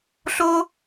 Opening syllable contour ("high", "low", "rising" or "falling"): high